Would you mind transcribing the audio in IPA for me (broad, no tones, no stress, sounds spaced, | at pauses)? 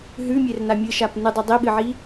ɦ ʉ mʲ e r n a mʲ ɨ ʃ a p n ɨ dˤ ɵ dˤ i ɓ ɨ ʕ i